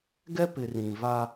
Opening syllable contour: high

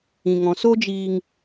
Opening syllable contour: low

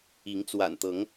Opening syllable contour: rising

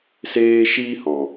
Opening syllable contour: high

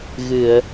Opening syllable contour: low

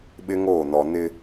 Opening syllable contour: high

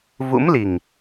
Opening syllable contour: rising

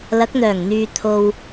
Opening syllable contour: rising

